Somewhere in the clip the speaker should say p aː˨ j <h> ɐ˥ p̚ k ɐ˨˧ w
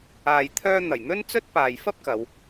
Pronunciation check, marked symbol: incorrect: f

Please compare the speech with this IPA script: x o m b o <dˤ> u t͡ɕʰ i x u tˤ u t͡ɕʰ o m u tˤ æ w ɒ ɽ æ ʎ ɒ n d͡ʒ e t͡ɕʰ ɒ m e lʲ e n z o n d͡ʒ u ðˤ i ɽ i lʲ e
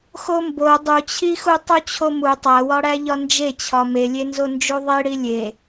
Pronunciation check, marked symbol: correct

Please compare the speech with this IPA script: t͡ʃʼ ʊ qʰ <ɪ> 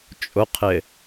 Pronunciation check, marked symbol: correct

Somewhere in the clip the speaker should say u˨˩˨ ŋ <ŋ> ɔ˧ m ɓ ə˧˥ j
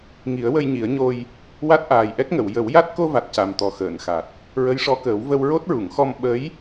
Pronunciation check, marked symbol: incorrect: x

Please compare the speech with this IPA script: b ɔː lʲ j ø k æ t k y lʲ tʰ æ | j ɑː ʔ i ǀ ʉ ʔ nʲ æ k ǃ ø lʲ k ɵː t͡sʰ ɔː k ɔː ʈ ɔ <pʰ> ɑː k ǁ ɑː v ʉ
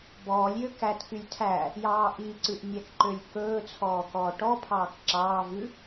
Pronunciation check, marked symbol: correct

